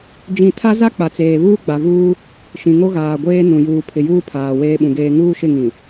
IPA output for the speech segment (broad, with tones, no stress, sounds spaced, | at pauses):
d͡ʒ ĩ˦˨ tʰ a˦ z a˦ k͡p a˨ t͡s eː˨ β uː˦ ɡ͡b a˨ v uː˦ | ʃ ĩ˨ ŋ o˦ ɣ aː˨ ɡʷ eː˦ n ũ˨ j uː˨ pʰ ɪ˨ j uː˦ pʰ aː˨ w eː˦ ɓ ũ˨ ɡ eː˦ ŋ uː˦ ʃ ɪ˦˨ ŋ ĩ˨